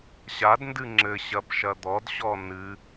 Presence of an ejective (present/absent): absent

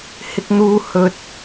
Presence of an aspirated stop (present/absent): absent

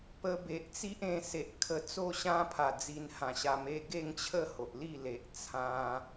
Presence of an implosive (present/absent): absent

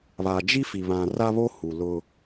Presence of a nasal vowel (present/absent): present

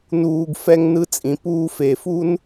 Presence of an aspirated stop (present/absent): absent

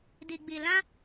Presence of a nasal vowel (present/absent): present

